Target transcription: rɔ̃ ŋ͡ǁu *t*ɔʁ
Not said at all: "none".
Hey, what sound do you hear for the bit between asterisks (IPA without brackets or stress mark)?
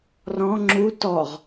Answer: t